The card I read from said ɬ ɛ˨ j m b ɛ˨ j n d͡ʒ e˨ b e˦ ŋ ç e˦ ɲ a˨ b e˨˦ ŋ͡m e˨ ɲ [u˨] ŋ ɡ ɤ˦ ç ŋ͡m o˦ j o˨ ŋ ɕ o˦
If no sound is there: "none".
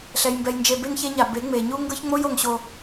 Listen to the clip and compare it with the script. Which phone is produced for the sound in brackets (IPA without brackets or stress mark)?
u˦